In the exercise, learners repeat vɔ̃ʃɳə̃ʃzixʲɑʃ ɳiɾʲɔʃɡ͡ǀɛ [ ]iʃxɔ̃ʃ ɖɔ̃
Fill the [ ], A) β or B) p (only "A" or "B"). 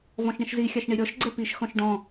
B